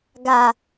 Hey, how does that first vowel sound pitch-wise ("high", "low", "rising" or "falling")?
low